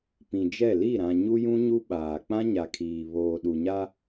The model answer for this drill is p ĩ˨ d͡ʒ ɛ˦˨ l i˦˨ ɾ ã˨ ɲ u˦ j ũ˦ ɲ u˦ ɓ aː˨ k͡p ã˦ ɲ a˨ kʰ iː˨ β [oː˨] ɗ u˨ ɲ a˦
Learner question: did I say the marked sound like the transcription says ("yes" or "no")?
yes